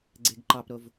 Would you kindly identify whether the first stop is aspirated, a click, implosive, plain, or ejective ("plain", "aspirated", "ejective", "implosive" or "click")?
click